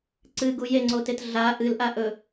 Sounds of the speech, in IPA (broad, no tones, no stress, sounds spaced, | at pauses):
ǀ ɨ ɡ u j e ŋ͡ǀ o t e t ɮ a ʔ ɨ l ʔ a ʔ ɵ